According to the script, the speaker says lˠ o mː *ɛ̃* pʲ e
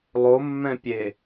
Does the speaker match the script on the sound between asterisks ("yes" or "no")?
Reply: yes